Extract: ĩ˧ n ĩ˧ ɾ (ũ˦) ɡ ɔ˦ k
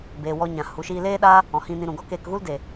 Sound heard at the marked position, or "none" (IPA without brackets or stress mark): ũ˨